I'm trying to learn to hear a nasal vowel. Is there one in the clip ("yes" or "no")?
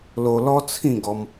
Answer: yes